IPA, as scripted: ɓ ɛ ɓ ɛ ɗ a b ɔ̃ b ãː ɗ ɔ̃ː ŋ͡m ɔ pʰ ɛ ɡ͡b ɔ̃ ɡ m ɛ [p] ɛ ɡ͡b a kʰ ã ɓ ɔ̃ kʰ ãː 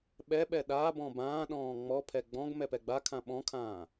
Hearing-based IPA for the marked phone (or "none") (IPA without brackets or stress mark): p